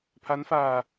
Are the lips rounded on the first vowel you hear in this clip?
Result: no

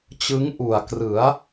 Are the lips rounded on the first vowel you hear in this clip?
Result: no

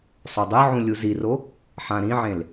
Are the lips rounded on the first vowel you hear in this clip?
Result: yes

